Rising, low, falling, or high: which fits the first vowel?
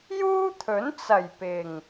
high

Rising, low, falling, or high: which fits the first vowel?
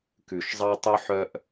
low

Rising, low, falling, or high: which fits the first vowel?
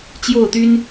falling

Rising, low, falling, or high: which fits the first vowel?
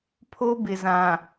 high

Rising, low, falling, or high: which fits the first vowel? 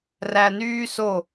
low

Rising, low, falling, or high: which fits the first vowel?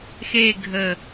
falling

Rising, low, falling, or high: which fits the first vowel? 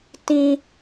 high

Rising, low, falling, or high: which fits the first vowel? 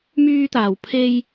high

